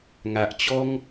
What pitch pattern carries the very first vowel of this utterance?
low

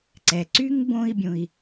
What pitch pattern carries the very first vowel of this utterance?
low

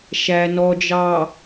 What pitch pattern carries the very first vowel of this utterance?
low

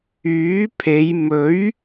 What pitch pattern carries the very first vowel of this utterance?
rising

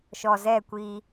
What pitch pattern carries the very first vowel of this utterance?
low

